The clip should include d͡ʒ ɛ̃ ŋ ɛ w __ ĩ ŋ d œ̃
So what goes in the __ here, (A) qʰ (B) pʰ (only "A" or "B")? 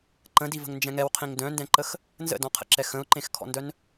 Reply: A